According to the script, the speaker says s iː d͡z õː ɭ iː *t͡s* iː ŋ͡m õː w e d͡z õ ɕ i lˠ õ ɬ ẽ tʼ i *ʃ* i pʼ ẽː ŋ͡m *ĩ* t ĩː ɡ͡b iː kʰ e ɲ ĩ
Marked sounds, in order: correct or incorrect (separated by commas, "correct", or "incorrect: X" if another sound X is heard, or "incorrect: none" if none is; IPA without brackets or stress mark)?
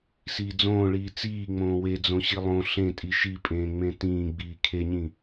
correct, correct, incorrect: ẽ